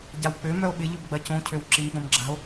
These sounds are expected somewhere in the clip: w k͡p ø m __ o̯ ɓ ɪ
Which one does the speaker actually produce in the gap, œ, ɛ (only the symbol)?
œ